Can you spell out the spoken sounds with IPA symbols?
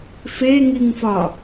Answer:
f e ŋ i ŋ f ɒ

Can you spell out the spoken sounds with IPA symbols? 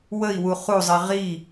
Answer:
w ə i̯ w u χ u zˤ i ʁ i

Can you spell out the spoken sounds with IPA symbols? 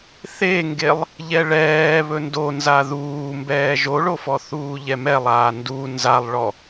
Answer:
θ e ŋ ɡ e lˠ | ʎ ɛ ɭ ɛː β ɵ n d o n z a ð uː m b ɛː ʒ o ɭ o f ɔ θ uː ʎ ɛ m ɛ lˠ aː n d u n z a lˠ ɭ ɔ

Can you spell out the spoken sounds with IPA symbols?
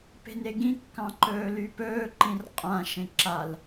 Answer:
p e̤ n e ɡ ĩ kː ɑ̃ ǃ ɵː l y p ɵː ǃ ĩ r qʼ ã ʃ ẽ ǁ a l

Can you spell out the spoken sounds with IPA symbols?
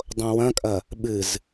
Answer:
dˤ õ w ɐ̃ kʼ ɐ | ɓ ɨ z

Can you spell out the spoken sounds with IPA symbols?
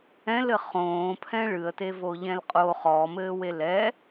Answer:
ɛ̃ l ɘ χ õː pʰ ɛ̃ ɭ ɨ ə̯ t e v o ʎ ɛ̃ l qʼ o χ ɔ m ɘː w e l ɛ

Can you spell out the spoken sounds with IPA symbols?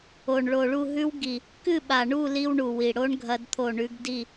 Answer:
o˨˩ ɳ ɭ o˨˩ ɭ u˥˨ ɦ ʉ˦˥ w ɡ i˨˩ | k ɨ˥˨ ɓ a˨˩ ɳ u˥˨ l i˦˥ w ɳ u˨˩ w i˨˩ ɽ o˦˥ ɳ ɡʱ ɐ˦˥ d t̪ʰ o˥˨ ɳ ʉ˦˥ ɡ d i˥˨

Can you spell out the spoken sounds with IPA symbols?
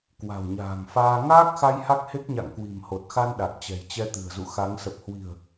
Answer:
k w a̤˨˩ w ɲ a̤ː˨˩ ŋ f aː˧ ŋ aː˦˥ k̚ x a˧ j h a˦˥ k̚ h e˦˥ k̚ ɲ a̰˧˨ ŋ k w i̤˨˩ m h o˨˩ t̚ x a˧ n ɗ a˨˩ k̚ t͡ɕ ɛ̤˨˩ j t͡ɕ ɛ˧ t̪ ɨ̤˨˩ ə̯ z ṵ˧˨ x a˨˦ ŋ s ə˨˩ p̚ h w i̤˨˩ ə̯

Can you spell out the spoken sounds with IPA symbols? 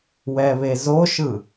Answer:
w ɛ β e z o ʃ ɯ

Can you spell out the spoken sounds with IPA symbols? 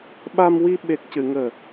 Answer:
ɓ a˧ m w i˧ ɓ e˨˩ k̚ c ɨ˨˩˨ ŋ əː˨˩

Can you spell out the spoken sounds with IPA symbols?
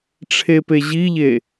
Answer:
ʈ͡ʂʰ e p e ʑ i ʎ e

